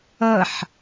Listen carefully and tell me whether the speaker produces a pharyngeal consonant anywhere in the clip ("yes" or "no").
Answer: yes